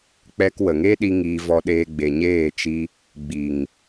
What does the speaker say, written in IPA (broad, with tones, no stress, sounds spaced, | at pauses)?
k͡p ɛ˧ k w ə˨ ŋ e˦ ɗ i˧ ŋ iː˧ v ɔ˧ ɗ eː˧ ɡ͡b e˨ ɲ eː˦˨ t͡ʃ i˧ | ɡ͡b i˨ ŋ